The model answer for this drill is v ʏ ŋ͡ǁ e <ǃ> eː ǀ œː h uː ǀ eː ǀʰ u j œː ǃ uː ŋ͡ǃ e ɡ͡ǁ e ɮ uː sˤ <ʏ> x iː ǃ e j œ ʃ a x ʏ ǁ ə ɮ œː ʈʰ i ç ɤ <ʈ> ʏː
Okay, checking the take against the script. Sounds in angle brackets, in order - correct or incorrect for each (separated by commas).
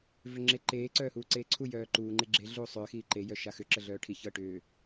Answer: correct, incorrect, correct